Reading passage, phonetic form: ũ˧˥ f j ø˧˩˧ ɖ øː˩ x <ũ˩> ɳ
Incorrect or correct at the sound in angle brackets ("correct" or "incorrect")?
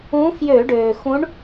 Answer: incorrect